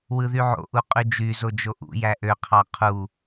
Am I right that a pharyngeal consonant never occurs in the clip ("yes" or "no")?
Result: no